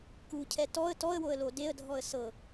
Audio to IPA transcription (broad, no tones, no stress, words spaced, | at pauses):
kucʰɛ tɔə̯ tɔə̯woə̯ lodeə̯dʱɔə̯ sɤ